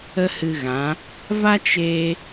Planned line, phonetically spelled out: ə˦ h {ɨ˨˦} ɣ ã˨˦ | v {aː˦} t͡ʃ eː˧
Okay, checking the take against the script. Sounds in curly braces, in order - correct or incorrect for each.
incorrect: ɨ˧, incorrect: a˦

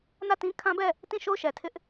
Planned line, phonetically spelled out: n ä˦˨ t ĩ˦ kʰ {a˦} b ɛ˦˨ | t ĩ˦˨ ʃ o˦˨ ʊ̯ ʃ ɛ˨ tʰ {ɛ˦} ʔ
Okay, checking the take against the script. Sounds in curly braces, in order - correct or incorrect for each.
incorrect: ã˦, incorrect: ɪ˦

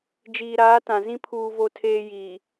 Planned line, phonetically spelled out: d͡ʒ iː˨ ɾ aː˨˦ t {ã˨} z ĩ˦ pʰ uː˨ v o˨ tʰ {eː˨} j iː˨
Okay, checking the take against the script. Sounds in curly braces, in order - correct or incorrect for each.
correct, correct

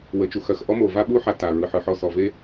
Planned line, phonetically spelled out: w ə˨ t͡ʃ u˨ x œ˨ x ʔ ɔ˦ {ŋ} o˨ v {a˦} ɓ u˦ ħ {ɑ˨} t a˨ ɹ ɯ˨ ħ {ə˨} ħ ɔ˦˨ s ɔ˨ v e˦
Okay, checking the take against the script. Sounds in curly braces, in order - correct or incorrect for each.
incorrect: m, correct, incorrect: a˨, incorrect: ɯ˨

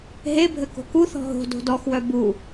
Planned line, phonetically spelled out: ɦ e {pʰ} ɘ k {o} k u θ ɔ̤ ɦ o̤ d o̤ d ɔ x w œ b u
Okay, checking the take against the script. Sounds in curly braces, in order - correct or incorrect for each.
incorrect: bʱ, incorrect: o̤

